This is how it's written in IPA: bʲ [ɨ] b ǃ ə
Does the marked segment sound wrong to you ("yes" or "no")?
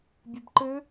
no